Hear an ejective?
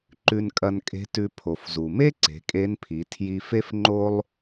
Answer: yes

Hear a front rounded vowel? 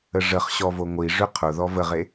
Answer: yes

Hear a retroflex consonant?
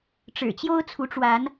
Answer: yes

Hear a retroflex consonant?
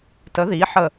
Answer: no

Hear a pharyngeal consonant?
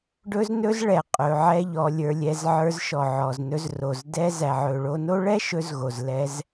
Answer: yes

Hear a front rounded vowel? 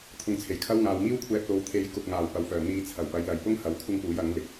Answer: yes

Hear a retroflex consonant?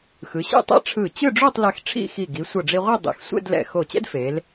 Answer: yes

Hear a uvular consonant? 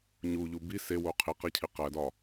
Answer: yes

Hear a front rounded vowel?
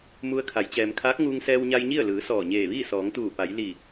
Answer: no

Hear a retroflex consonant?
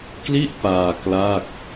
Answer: no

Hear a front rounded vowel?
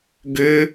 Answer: yes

